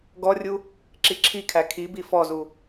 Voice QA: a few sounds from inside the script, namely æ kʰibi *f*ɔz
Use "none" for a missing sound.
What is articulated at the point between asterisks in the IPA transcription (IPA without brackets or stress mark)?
f